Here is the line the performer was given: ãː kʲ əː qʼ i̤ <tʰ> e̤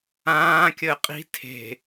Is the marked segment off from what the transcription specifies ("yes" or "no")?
no